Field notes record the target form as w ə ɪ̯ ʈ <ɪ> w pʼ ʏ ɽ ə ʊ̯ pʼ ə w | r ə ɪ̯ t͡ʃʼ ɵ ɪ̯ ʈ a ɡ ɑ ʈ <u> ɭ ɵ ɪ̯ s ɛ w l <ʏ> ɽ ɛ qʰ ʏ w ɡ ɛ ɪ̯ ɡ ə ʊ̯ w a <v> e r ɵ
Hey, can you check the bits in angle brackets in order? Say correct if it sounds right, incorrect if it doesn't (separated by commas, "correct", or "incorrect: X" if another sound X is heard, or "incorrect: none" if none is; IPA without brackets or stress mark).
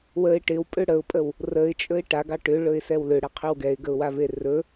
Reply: correct, incorrect: ʏ, correct, correct